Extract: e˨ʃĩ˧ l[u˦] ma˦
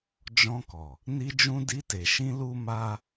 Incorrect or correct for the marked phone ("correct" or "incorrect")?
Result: correct